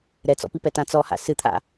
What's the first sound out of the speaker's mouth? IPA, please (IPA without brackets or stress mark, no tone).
ɾ